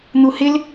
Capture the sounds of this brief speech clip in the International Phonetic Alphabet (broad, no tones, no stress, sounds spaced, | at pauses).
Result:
n̪ u h ɪ l